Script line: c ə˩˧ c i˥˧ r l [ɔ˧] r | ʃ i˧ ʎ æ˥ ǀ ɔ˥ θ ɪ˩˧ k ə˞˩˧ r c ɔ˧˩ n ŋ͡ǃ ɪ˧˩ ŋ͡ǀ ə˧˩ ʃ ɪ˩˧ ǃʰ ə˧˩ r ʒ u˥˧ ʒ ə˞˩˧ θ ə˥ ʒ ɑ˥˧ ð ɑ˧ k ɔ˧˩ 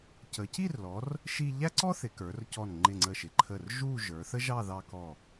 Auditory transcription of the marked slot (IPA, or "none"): ɔ˩˧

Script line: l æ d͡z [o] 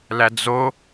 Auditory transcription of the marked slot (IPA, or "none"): o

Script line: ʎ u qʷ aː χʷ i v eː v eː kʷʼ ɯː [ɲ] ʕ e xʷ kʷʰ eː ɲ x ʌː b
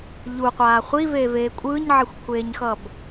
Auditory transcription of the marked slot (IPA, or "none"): ɲ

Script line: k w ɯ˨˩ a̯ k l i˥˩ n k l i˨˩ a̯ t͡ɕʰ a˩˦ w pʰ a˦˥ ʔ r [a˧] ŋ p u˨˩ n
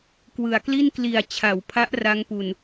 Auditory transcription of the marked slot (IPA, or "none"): a˦˥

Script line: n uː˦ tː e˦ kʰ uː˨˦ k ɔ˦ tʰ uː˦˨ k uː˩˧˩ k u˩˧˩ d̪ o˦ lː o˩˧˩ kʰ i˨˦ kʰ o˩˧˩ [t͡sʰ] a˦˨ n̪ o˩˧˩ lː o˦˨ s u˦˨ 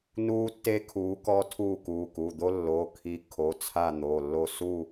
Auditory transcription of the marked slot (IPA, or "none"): t͡sʰ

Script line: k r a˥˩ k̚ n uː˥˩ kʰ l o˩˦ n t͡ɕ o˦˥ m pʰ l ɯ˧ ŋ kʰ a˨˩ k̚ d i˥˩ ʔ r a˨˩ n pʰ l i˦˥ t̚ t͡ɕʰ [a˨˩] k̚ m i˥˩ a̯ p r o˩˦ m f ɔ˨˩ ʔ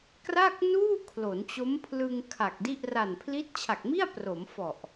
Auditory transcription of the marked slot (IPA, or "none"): a˨˩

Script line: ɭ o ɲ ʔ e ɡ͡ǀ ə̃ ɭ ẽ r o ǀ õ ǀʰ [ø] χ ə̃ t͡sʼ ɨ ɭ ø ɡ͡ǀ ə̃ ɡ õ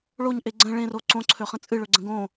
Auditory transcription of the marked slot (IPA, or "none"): ø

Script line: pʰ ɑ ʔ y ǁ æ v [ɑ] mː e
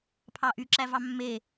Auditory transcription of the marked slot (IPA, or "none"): ɑ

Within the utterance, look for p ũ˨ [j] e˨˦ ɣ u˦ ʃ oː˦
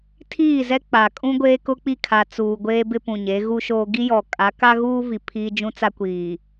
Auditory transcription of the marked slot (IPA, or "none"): ɲ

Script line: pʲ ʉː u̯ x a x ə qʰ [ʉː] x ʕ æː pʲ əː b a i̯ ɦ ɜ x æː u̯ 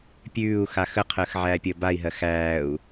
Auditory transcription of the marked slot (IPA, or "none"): əː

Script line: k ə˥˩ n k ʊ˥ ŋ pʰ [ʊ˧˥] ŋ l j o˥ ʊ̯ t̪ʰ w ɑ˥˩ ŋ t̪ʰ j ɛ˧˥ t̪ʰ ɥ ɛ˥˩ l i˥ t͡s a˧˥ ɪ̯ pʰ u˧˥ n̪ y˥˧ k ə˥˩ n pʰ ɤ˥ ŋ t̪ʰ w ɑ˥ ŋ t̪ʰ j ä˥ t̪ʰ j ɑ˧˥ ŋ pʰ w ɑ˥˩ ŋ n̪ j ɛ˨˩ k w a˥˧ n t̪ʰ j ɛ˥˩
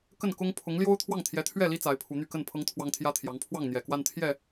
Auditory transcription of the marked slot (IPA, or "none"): ʊ˧˥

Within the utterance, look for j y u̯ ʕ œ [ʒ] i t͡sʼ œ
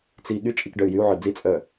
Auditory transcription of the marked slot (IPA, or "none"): d͡z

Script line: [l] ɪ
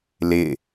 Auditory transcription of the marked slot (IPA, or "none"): l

